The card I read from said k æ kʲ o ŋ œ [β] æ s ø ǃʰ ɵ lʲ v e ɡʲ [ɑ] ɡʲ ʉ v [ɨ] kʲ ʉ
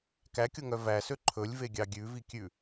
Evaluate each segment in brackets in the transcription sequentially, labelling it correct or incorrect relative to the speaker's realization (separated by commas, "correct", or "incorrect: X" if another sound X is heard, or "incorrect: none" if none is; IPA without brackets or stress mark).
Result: incorrect: v, correct, incorrect: i